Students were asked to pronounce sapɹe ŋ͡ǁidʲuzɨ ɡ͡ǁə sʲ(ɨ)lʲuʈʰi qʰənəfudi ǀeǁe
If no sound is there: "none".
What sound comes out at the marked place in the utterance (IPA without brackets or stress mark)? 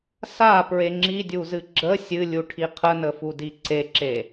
ɨ